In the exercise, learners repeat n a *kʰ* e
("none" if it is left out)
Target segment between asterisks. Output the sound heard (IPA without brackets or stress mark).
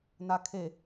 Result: kʰ